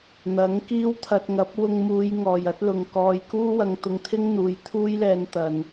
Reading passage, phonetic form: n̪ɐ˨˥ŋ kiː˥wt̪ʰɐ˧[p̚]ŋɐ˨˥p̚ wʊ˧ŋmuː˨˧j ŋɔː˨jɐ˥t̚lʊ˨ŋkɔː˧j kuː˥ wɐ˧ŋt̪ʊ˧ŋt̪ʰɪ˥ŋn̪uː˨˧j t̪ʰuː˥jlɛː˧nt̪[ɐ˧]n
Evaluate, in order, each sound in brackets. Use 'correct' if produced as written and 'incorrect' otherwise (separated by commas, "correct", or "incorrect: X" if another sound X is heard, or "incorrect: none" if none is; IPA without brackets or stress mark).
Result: incorrect: t̚, incorrect: ɐ˨